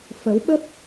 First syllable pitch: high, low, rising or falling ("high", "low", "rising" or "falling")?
rising